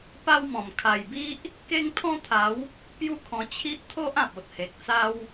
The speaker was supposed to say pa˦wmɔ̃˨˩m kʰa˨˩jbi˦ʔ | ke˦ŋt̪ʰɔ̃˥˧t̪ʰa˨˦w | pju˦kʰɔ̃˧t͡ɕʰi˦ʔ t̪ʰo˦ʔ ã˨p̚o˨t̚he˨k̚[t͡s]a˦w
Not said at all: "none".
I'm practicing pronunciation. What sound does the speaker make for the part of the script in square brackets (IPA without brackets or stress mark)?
t͡s